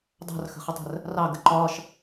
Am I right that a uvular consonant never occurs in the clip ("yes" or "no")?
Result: no